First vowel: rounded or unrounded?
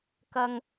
unrounded